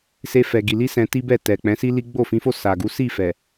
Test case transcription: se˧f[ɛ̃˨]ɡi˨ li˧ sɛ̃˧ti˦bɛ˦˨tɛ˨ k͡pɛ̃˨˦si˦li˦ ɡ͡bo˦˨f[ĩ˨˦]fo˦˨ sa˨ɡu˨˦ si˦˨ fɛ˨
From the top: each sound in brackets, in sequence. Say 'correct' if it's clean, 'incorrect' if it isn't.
incorrect: ɛ˨, correct

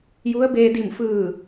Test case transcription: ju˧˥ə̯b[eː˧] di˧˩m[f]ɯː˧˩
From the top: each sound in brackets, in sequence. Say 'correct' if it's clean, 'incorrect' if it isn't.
correct, correct

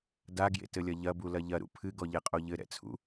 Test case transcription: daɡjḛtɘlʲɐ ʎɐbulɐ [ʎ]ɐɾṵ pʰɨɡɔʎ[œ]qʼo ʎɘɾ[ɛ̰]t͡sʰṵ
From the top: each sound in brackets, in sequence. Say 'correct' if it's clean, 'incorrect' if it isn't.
correct, incorrect: ɛ, correct

